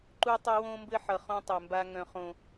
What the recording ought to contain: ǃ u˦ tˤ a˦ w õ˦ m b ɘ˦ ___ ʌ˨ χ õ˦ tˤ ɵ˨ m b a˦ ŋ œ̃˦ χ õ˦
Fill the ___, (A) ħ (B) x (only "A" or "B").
A